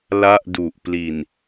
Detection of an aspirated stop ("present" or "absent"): absent